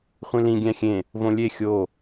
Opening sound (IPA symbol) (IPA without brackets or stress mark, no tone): χʷ